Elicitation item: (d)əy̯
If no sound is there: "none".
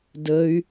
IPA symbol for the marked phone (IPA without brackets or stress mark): d